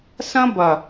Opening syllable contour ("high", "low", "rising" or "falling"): high